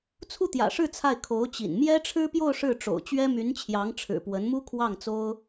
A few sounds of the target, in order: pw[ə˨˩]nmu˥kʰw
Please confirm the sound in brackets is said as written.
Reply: no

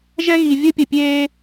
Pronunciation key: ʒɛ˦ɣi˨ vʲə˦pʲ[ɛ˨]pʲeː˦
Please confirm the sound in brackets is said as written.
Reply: no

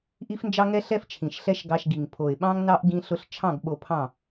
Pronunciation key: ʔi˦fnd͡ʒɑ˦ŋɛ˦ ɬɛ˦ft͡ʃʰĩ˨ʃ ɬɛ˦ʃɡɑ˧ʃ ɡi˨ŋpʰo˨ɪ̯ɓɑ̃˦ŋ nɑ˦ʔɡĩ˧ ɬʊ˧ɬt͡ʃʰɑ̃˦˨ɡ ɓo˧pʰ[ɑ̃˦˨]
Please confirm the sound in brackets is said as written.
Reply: yes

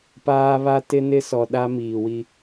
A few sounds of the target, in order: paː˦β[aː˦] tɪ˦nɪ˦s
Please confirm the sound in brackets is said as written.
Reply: no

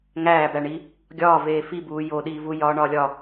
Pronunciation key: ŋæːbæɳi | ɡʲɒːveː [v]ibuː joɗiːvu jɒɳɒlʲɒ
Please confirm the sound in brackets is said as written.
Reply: no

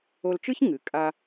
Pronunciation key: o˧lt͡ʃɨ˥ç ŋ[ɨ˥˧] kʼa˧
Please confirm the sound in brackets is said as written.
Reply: no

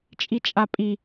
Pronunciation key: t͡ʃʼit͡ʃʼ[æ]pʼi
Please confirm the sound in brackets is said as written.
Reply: no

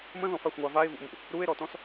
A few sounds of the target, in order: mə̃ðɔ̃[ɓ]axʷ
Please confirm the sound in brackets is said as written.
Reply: no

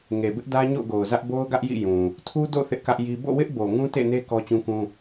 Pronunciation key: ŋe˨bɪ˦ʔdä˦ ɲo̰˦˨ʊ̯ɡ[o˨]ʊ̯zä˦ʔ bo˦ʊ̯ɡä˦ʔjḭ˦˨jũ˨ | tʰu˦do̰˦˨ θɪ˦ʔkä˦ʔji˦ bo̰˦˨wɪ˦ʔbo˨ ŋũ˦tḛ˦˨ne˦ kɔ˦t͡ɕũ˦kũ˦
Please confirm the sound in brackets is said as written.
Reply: yes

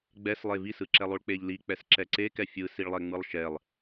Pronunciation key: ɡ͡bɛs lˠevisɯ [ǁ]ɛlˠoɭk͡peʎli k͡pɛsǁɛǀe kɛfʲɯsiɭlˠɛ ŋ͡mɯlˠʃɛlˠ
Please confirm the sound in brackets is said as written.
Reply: yes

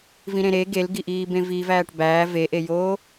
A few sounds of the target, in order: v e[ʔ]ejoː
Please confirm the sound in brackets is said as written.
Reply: yes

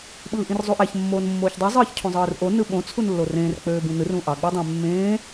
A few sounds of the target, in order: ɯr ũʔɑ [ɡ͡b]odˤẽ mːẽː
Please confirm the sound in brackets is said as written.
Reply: yes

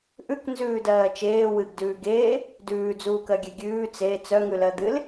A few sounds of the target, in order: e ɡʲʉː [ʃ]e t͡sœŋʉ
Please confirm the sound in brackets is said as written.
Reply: no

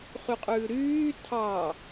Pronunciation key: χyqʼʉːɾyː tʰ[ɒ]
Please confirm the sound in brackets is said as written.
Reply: no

